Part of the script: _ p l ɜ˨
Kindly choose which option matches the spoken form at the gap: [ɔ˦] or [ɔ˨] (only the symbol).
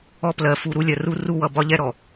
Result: ɔ˦